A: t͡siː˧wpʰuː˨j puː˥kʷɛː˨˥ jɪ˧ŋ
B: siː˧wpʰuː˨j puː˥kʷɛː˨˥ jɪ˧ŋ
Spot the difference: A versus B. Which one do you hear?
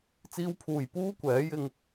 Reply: A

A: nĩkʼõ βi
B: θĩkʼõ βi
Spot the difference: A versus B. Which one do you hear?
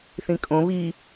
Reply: B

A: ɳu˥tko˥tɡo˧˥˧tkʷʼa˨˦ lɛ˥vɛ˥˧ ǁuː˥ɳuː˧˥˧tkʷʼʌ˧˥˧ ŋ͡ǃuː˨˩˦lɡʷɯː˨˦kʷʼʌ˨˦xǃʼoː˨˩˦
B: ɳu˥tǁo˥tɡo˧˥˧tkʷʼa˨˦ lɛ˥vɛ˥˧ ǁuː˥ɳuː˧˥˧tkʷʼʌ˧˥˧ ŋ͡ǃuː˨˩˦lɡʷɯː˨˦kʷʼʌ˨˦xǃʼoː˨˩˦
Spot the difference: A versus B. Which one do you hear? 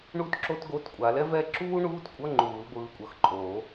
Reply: B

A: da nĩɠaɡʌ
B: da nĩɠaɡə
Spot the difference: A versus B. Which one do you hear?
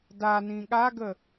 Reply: B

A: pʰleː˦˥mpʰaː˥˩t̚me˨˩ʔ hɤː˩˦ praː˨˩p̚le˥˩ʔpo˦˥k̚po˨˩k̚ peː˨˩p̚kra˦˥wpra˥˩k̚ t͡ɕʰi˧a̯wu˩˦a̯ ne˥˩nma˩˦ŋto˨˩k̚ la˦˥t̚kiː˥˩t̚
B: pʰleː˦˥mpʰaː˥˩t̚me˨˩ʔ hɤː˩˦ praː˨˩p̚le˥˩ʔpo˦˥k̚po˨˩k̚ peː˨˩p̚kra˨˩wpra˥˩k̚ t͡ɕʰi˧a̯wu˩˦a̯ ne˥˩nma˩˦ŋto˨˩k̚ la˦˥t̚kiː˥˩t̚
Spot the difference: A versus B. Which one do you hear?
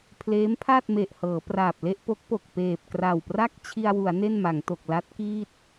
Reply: B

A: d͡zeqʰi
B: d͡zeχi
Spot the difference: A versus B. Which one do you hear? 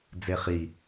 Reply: B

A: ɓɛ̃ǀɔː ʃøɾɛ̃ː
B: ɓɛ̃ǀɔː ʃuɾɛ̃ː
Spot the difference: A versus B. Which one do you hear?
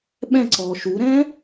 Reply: B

